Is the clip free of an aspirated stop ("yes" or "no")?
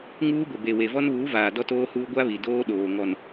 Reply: yes